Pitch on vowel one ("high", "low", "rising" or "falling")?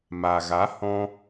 low